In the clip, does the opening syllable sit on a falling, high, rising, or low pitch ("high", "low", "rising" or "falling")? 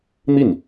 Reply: falling